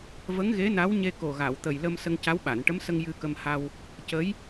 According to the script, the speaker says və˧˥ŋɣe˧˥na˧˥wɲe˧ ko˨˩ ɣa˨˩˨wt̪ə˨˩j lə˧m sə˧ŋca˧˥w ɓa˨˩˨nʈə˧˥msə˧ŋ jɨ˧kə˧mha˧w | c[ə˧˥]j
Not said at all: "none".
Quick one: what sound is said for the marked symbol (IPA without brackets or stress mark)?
ə˧˥